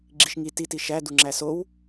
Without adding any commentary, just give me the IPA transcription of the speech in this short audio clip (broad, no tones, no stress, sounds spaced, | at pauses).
ɡ͡ǁ i ʃ ŋ i t i t i ʃ æ d u ŋ͡ǁ æ s o w